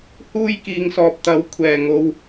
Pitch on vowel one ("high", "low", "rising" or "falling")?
high